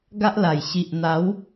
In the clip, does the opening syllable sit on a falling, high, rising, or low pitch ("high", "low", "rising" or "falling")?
high